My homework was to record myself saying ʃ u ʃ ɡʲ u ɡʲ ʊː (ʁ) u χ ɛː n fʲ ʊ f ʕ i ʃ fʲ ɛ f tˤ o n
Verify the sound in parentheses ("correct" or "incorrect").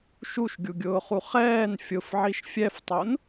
incorrect